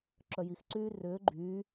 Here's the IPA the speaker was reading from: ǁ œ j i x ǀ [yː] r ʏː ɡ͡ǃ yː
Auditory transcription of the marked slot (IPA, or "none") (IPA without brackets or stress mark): yː